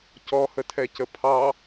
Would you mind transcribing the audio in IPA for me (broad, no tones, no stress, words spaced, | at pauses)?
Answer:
cɔhətʰɛcə pʰɑ